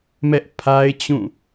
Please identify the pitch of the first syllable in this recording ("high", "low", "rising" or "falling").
high